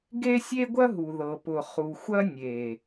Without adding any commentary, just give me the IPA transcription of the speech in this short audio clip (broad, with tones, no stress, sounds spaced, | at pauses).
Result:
ɡ e˦ sʲ e˦ ɡʷ ɐ˦ ɦ u˨ ð ɤ˨ p ʊ˨ χ u˨ xʷ ɐ˦ nʲ e˨